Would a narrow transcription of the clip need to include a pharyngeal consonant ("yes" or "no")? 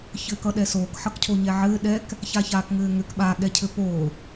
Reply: yes